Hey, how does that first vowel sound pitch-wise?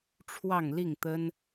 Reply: falling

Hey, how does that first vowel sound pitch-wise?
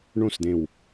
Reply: falling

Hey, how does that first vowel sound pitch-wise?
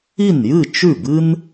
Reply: falling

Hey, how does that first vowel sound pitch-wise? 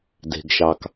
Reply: low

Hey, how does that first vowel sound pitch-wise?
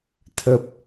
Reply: low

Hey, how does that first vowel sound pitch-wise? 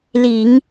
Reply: low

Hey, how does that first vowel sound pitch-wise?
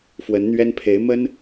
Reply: rising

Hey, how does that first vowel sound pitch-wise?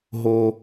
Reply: low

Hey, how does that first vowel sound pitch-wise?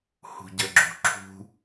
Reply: low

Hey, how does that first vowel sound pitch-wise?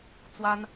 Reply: high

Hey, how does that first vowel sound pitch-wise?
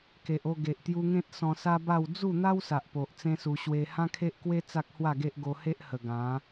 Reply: low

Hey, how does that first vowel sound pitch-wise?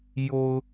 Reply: low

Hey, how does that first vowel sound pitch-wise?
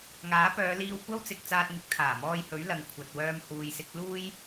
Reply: rising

